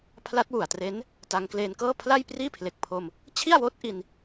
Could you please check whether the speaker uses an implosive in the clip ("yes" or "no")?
no